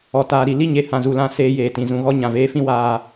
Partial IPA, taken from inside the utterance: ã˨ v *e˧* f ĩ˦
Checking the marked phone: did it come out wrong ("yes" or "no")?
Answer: yes